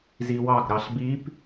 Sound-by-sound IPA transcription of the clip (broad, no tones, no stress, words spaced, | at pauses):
ziwɑɡ ɾɑɬbip